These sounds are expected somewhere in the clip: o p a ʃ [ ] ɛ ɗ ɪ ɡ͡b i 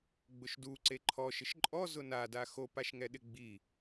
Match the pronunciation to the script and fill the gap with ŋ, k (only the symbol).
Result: ŋ